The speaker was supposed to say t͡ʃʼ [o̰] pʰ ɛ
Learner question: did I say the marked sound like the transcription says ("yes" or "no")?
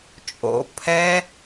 yes